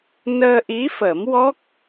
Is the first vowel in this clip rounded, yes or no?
no